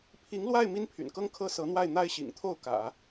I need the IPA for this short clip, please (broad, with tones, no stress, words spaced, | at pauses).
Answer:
pʰi˧˥ŋlwa˥˩ɪ̯ mi˥npʰy̰˨˩nkɤ˥ŋkʰɤ˥ sɤ˧˥n̪wa˥˩ɪ̯ n̪a˥ɪ̯ɕḭ˨˩ŋ t̪ʰo˥˩ʊ̯kä̰˨˩˦